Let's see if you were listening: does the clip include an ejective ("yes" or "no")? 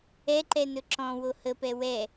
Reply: no